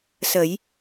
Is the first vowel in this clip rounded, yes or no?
no